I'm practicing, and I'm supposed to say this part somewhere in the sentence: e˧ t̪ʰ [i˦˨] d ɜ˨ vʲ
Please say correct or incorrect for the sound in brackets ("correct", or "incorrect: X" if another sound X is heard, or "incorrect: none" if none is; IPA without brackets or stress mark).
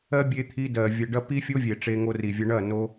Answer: incorrect: i˧